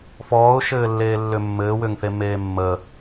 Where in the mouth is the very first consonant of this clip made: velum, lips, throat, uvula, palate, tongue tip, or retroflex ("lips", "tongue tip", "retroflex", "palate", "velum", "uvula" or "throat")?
lips